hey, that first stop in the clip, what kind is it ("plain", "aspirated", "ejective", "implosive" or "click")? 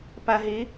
plain